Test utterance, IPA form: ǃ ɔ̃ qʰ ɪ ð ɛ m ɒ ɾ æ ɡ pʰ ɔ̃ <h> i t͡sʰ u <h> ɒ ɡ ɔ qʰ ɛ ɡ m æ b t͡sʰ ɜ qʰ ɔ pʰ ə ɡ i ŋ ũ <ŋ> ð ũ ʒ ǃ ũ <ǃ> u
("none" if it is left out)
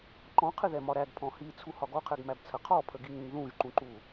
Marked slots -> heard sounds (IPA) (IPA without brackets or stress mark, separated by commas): h, h, ŋ, ǃ